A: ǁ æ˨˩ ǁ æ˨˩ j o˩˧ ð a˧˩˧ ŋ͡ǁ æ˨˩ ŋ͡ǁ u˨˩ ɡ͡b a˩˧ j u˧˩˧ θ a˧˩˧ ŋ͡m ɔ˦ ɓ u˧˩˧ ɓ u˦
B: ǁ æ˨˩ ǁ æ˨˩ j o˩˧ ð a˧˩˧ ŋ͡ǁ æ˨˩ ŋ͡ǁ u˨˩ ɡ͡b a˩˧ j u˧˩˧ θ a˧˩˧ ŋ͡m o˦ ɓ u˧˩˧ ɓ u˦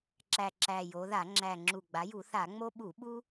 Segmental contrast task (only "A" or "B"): B